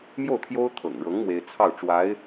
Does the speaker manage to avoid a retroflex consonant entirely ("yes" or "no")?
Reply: no